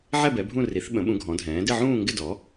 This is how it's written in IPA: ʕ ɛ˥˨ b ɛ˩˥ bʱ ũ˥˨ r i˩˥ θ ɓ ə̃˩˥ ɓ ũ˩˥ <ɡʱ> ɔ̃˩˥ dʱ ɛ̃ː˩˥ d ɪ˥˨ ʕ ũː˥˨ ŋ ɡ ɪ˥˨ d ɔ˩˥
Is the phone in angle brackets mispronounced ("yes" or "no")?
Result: no